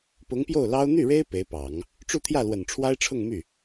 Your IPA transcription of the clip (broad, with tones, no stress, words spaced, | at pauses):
pʊ˧˥ŋpjo˥˩ʊ̯lɑ˥ʊ̯ n̪y˥˩ɻe˥ɪ̯ pe˧˥ɪ̯pɑ˨˩˦ŋ | ʈ͡ʂu˥˧t̪ʰjä˥˩ lwə˨˩nʈ͡ʂʰwa˥ɪ̯ʈ͡ʂʰʊ˥˧ŋmy˥˩